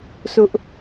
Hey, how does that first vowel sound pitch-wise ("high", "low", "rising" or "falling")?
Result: high